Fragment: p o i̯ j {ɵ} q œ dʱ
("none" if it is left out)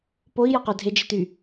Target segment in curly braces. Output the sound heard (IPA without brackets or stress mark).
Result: ɔ